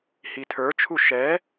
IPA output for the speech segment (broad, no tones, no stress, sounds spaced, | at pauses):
h i tʰ ə˞ t͡ʃʰ u ʃ ɛ